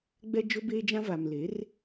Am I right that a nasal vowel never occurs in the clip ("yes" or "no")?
no